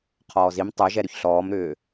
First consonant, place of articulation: uvular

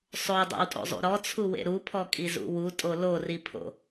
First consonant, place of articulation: alveolar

